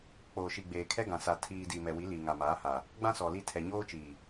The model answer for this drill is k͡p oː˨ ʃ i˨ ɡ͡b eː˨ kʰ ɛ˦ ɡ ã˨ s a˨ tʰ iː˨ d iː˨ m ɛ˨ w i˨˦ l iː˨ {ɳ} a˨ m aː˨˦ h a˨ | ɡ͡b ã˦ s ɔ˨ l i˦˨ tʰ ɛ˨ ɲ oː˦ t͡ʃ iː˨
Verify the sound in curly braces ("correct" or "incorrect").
incorrect